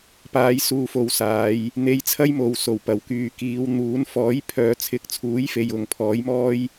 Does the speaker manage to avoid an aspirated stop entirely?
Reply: no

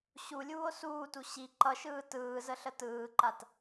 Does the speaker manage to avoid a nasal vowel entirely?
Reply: yes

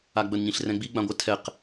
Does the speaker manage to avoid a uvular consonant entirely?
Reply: no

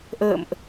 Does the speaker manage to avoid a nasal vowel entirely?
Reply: yes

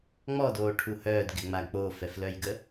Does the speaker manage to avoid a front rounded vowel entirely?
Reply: no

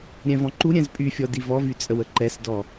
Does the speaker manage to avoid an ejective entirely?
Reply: no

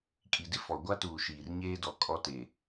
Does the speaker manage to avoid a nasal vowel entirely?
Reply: yes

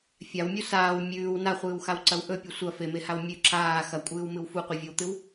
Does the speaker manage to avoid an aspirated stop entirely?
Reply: yes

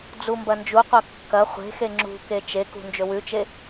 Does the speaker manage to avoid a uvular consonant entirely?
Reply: no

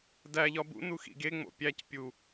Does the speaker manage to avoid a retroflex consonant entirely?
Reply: yes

